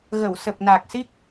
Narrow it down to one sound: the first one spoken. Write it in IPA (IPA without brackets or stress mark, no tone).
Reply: ɣ